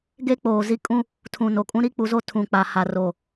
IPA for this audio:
ɡ e˦ k͡p oː˨ z i˦ kʼ ũ˦ | tʰ ũ˨ n o˨ kʼ ũ˦ ɾ i˦ k͡p u˨ z o˦ tʰ ũ˨ k͡p a˨ h a˨ r o˨

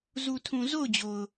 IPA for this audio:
z u˨ tʰ ũ˨ z o˦˨ ʊ̯ d͡ʑ o˨ ʊ̯

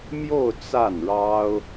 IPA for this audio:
m j o˥˧ ʊ̯ t͡s a˥˩ n ɻ ɑ˥ ʊ̯

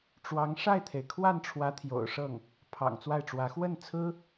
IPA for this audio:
ʈ͡ʂ w ɑ˧˥ ŋ ʂ a˥˩ ɪ̯ t̪ʰ e˩ ɪ̯ kʰ w a˥˩ n ʈ͡ʂʰ w ä˧˥ t̪ʰ j o̰˨˩ ʊ̯ ʂ ɤ˥˩ ŋ | pʰ ɑ̰˨˩ ŋ t͡s w a˥˩ ɪ̯ ʈ͡ʂ w ä˧˥ x w ə˥˩ n t͡sʰ ɹ̩˥

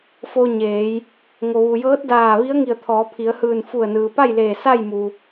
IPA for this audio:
f o˧ ɲ eː˩˧ j | ŋ o˩ ʋ u˩ j ɤː˧˥ t̚ d aː˧˩ ʋ i˧˥ ə̯ ŋ i˧˩ ə̯ t̪ʰ ɔː˩˧ pʰ i˩˧ ə̯ h ɯː˧˩ n f u˧˩ ə̯ n ɯː˩ p a˥˨ j l eː˧˩ s a˥˨ j m u˩

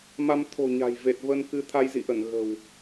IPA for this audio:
m a˧ m t̪ʰ o̤˨˩ ɲ a̤˨˩ j v e˨˩ t̚ v ə˧ n k ɨ˧ t̪ʰ a˧ j z ḭ˧˨ ʔ ə˧˩ n ɣ ə̤˨˩ w

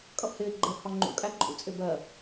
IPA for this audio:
kʼ ʌ ʔ h ɪː ɡ͡ǃ ɛ ʔ h ɒ ŋ͡ǃ ṵ kʼ æ ǃʼ ṵ t͡sʼ ɪ b ɜ

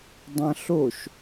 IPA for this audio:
dˤ ɐ̃ ɬ o ʃ

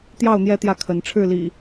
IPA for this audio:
t̪ j ɑ˥˨ ʊ̯ n̪ j ɛ˥˨ t̪ j ä˥˨ kʰ ə˨˦ n ʈ͡ʂʰ ɻ̩˥˨ l ḭ˨˩

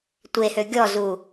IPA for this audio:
tʷ e h ø ɡʲ ɔ z u

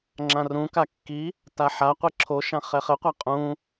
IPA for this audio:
ŋ͡ǁ ã r ũ k a kː i | t a ħ a qʷ i ǁʰ o ʃ ã χ ɛ χ ɘ qʷ a qʼ ũ

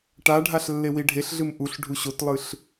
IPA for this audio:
ʈ a ɖʱ a ɬ lː e w i ɖʱ e ɬ ɮ ɨ m ʔ u ɬ ɖʱ u ɕ o t lˠ ɨ ɬ

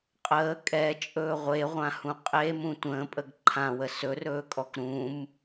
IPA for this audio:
qʼ əː kʼ ɛ t͡ʃʼ ɵː ʁʷ e ʁʷ ã h ũ qʼ e m ũ tʷ ə̃ː pʼ ə ɡ ǃʰ ã w ə s ɵ r ɵː kʼ ɔ k ɾ ũ m

